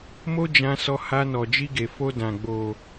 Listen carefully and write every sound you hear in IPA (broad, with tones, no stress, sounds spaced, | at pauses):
m o˦ d͡ʒ ã˧ s ɔ˧ h a˧ n ɔ˨ d͡ʒ i˧ ɡ e˨ f o˧ d ã˨ ɡ͡b o˨